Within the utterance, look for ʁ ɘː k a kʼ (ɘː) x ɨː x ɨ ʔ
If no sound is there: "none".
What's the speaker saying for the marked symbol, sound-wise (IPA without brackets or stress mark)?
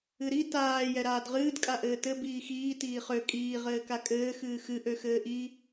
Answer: ɘː